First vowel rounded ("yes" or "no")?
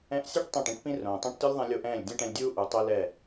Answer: no